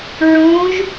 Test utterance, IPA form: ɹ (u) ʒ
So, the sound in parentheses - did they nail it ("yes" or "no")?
no